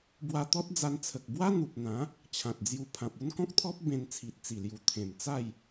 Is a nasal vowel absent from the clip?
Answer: no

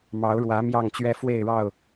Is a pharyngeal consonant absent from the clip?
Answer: yes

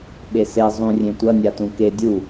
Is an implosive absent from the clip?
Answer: no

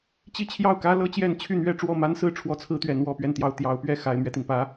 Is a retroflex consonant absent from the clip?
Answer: no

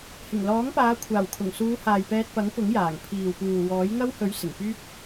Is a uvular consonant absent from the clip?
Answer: yes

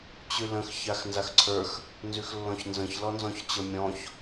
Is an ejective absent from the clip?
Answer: yes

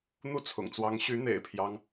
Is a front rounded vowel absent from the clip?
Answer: no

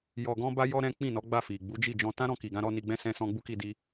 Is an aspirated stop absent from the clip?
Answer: yes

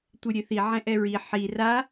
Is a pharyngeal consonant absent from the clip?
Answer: no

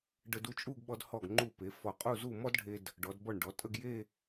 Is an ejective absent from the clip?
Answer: no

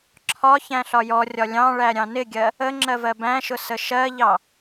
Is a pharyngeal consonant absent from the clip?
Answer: yes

